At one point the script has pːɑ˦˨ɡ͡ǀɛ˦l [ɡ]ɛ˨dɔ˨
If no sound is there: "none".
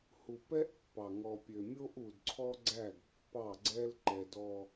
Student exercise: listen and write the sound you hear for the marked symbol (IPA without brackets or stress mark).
ǃ